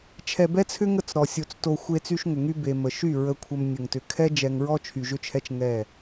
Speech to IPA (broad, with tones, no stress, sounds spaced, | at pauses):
t͡ʃʰ ɛ˨ b ɛ˦ t͡sʰ ʏ˦ ŋ ə˦˨ t͡s ɾ ɔ˨ sʲ o˨ t͡s t o˨ xʷ e˦ t͡s y˦ ʃ ŋ ʏ˨ ŋ y˦ b e˨ m ə˨ ʃ y˦˨ ɹ ə˨ kʷʰ ə˨ m nʲ ə˨ ŋ t ʏ˨ kʰ ɛ˦ d͡ʒ ɛ˨ ŋ ɹ ɔ˦ t͡ʃʰ y˨ ʒ ʏ˦ t͡ʃʰ ɛ˦ t͡ʃ ŋ ɛ˦˨